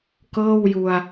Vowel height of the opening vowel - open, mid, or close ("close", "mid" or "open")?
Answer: mid